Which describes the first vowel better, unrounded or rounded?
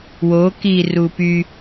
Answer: rounded